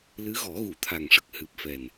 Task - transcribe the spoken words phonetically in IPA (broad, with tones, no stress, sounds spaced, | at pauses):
l ɨ˧˥ ɣ ɔ˨˩˦ ɣ u˨˩˨ t̪ʰ a˨˩ ŋ ʂ ə˨˩ k̚ h ɨ˨˩ p̚ f ɛ˨˩ n